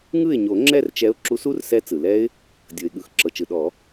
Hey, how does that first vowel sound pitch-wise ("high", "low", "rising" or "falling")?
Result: falling